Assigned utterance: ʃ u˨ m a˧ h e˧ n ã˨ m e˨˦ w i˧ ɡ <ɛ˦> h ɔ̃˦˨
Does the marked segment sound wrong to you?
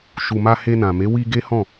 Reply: yes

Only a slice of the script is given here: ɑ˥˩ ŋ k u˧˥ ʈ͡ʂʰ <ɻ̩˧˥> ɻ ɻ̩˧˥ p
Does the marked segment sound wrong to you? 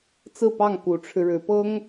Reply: yes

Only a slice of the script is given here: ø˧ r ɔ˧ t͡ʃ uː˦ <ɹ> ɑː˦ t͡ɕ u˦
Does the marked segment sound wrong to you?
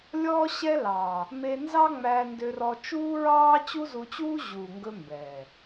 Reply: no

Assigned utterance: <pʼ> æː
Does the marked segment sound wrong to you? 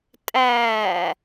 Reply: yes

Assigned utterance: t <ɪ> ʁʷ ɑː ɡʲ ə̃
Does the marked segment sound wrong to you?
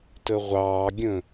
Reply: yes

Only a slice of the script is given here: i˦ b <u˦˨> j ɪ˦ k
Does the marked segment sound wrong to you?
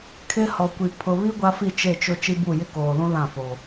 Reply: no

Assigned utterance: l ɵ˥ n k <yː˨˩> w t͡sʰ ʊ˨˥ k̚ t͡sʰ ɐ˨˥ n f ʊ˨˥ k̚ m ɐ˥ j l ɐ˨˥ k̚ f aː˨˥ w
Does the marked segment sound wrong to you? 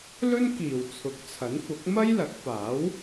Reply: yes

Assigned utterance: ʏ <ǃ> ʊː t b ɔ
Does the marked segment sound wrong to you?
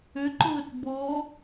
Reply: no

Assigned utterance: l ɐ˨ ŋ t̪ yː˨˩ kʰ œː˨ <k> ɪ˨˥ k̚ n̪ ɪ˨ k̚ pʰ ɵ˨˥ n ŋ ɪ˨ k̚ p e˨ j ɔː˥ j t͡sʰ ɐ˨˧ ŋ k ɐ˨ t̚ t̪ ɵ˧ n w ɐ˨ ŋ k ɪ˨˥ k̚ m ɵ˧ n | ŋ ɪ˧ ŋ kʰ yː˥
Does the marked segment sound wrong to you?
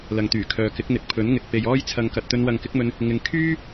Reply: no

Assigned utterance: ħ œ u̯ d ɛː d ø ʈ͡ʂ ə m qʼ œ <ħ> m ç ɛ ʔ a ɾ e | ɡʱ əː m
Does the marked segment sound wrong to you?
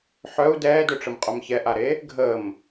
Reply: yes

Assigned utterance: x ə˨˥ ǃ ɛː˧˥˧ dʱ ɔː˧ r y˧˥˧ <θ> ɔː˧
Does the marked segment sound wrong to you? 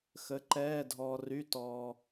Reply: yes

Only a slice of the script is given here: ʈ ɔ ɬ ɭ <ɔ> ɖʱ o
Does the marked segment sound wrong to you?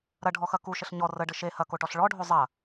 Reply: no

